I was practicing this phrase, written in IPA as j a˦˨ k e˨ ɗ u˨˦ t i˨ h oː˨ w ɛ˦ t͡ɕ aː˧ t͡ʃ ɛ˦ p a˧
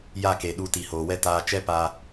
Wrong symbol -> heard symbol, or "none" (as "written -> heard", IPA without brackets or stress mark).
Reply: t͡ɕ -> t